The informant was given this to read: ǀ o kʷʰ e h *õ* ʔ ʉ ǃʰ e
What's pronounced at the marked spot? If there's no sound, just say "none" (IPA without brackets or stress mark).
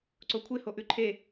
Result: o